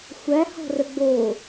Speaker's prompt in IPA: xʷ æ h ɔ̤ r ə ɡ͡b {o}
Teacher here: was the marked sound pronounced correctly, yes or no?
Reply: yes